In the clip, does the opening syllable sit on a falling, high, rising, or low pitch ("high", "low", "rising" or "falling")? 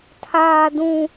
high